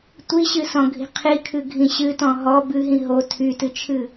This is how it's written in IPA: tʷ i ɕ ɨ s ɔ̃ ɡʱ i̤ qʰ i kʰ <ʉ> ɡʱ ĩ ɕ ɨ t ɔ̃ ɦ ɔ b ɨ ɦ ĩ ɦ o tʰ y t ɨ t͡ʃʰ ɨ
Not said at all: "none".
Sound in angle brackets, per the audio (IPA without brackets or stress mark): ɨ